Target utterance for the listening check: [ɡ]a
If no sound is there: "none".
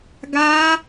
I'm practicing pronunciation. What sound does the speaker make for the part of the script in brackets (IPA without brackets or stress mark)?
ɡ